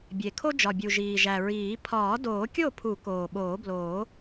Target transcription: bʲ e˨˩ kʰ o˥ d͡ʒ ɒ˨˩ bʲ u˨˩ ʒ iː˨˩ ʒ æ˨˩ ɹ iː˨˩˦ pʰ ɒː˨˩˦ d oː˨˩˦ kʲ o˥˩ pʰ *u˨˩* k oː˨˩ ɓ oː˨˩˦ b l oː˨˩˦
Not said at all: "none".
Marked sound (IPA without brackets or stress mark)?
u˨˩˦